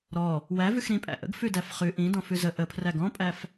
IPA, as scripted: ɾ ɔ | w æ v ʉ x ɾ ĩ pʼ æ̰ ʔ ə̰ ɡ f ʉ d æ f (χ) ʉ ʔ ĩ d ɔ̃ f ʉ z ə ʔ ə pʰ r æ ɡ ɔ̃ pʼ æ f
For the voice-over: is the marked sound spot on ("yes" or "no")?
yes